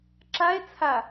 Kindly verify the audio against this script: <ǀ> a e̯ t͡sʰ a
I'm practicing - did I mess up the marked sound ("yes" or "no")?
yes